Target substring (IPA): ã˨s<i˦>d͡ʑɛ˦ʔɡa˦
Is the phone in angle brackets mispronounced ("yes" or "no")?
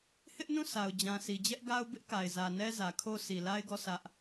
yes